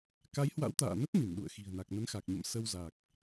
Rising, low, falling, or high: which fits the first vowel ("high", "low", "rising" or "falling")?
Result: rising